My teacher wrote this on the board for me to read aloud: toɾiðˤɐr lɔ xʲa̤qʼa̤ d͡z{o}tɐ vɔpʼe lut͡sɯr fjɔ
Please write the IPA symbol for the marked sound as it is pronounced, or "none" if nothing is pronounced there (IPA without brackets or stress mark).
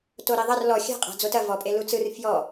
o